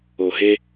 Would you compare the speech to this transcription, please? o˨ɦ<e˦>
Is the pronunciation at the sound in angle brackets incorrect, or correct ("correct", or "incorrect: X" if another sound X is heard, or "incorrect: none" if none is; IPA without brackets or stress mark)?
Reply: correct